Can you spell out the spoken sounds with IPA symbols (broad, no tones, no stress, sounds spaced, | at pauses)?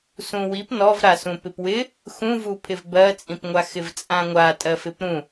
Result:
s ũ w i p n ɔ v ɾ a s ũ p ɪ p w ɪ | x ũ v u pʰ ɪ v b ɜ t͡sʼ ĩ p ŋʷ a x ɪ v t͡sʼ ã ŋʷ a tʼ ɜ f ɪ p ɾ ũ